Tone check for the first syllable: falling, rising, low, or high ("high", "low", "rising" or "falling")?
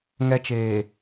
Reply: high